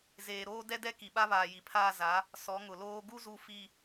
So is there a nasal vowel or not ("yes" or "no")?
no